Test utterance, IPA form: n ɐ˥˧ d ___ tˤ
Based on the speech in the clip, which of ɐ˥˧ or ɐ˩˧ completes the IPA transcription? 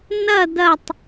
ɐ˥˧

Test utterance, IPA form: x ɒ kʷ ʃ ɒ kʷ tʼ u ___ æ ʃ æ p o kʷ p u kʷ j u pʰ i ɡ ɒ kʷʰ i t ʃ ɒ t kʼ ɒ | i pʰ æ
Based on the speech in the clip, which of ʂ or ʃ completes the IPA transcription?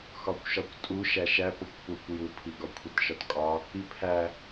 ʃ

